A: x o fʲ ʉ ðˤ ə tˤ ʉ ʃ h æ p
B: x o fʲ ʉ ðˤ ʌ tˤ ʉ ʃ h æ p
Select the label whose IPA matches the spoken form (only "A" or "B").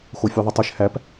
A